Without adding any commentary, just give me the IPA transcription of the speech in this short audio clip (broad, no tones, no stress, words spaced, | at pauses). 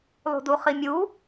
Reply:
lˠṳduχimʲu